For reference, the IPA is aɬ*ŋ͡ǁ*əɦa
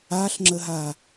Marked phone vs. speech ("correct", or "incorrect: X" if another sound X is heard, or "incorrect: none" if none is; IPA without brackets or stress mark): correct